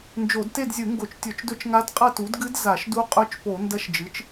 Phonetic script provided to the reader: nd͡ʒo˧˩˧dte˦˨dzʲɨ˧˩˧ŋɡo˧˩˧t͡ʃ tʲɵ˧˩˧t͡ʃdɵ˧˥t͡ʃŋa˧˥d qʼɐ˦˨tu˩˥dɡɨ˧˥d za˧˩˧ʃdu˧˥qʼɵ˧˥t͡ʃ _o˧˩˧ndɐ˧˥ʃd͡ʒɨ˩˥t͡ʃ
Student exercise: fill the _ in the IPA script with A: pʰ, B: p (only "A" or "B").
B